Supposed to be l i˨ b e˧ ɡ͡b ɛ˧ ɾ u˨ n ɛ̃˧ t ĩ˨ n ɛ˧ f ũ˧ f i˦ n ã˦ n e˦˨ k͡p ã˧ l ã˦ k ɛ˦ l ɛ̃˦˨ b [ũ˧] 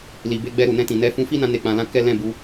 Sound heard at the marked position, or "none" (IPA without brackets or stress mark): u˧